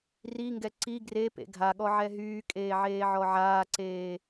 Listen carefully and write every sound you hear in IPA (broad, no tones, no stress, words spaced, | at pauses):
riŋɡɛ ǀi ɡrepḛ ɡʱaɠɔ ʕɛɦyːkʼeː ʕeːʕɔʕaːǀeː